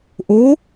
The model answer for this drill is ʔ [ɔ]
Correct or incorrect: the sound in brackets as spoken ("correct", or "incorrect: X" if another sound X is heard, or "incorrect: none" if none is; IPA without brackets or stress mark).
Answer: incorrect: o